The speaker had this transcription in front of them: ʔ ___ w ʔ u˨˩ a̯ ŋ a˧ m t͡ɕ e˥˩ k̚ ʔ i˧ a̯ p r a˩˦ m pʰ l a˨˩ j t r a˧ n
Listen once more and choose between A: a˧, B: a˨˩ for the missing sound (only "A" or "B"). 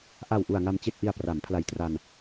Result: B